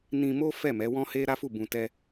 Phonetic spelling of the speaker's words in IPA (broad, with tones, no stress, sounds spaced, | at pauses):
n ĩ˧ m o˦ f ɛ˦˨ m ɛ˨˦ w ɔ̃˦ h e˦ ɾ a˦ f u˦˨ b ũ˧ t ɛ˦